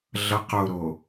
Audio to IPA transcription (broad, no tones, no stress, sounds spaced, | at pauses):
ɮ ʌ q o ɾ o